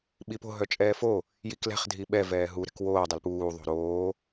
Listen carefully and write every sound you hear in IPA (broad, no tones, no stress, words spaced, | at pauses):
ɓipo̤ ɦœt͡ʃʼɛːfo | jiklɛ̤χ dʱiɓɛ vɛːɦu ɾɛ̤kwoː dˤɛlpuː ðˤo̤ɾoː